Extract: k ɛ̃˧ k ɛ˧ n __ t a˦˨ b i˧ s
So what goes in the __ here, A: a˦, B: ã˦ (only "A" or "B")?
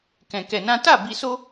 B